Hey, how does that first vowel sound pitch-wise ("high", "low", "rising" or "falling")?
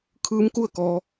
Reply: rising